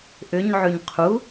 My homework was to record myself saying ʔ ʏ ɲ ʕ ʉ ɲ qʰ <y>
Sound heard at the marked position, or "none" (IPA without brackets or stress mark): u